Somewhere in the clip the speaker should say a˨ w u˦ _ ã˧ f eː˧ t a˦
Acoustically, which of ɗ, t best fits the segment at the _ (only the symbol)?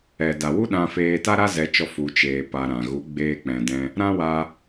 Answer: ɗ